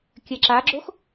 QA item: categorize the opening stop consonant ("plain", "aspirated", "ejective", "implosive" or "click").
plain